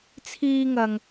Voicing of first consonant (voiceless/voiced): voiceless